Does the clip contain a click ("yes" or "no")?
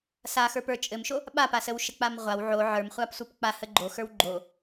yes